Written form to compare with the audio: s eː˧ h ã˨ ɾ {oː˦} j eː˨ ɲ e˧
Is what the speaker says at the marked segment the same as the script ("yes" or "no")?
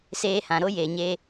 no